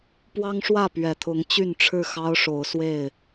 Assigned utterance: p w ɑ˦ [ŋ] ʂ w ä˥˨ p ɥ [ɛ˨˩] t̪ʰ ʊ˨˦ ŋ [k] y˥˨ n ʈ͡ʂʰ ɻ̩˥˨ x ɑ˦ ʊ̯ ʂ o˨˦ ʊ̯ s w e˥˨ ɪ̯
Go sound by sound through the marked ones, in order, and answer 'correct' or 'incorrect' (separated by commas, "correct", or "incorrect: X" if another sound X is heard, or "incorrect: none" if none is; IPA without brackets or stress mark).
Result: correct, correct, incorrect: t͡ɕ